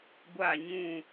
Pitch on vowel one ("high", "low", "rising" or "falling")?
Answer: falling